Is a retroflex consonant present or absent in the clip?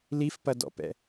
absent